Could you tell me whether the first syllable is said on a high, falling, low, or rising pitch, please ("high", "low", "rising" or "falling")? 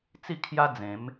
falling